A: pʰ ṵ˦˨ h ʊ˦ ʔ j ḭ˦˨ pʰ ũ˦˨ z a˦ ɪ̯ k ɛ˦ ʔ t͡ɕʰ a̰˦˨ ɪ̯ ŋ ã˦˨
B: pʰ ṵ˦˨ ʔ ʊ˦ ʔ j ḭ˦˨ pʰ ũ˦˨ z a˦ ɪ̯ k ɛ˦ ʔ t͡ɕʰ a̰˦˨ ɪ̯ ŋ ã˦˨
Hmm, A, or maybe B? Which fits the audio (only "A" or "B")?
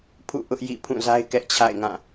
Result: B